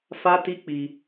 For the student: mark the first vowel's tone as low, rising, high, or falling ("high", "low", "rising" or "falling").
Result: high